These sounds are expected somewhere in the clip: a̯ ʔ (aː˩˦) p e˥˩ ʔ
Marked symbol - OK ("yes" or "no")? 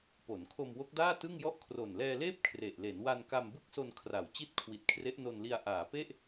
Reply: yes